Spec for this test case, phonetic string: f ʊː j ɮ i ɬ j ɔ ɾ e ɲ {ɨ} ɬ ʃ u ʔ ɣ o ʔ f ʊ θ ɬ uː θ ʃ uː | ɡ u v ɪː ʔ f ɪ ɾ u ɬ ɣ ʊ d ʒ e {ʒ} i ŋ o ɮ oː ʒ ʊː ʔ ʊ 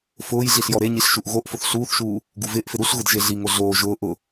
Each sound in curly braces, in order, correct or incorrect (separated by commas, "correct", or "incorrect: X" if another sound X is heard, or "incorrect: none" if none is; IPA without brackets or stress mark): incorrect: i, incorrect: ɮ